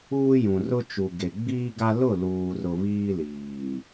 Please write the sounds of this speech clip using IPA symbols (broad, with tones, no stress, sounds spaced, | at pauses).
uː˦ j ũ˨ r ʊ˦ t͡ʃ u˨ ɡ e˨ ɡ͡b iː˦ ɡ a˦ l ʊ˦˨ l uː˨ r ʊ˨ β iː˦ l iː˨